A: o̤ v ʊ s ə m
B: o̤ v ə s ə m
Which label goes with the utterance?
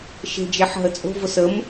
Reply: A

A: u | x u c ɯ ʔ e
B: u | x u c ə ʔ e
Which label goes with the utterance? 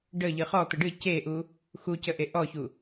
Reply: B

